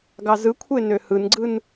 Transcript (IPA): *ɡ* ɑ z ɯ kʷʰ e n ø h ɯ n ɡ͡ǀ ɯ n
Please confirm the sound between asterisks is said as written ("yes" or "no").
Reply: yes